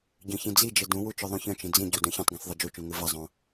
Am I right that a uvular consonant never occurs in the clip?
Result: yes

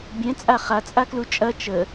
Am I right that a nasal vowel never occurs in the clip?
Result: no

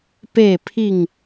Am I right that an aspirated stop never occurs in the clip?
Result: no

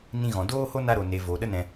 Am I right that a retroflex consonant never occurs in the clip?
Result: yes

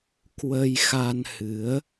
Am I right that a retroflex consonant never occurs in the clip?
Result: yes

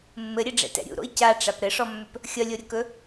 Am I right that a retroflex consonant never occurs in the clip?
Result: no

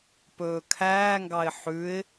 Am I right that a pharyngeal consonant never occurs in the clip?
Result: no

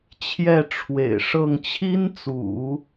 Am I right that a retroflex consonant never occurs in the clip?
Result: no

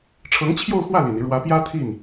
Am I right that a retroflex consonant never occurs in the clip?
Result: no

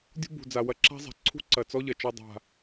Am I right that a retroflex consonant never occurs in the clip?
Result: yes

